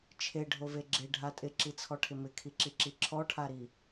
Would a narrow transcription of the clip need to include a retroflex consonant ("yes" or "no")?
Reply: yes